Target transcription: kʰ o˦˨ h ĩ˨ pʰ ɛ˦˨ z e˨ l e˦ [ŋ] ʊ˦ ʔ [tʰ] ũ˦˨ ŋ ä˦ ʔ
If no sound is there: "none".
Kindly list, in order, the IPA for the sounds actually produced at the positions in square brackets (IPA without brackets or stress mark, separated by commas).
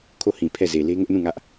ŋ, n